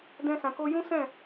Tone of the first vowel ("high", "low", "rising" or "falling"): high